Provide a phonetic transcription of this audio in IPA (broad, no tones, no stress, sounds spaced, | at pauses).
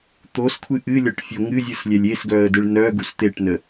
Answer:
t̪ o s kʷʰ ɨ ʔ ɨ lʲ ɒ ʈ fʲ o ŋ ɨ zʲ ɯ s lʲ ɛ lʲ e s ɡ œ ə̯ d ɯ ɭ n œ ɡ u s t̪ e ʈ n ə